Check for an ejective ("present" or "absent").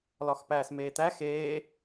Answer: absent